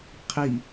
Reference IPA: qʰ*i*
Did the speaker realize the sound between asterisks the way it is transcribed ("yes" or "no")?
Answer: yes